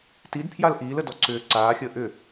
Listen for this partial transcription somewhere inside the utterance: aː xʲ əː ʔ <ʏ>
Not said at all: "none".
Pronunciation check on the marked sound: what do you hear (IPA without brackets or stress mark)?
ʏ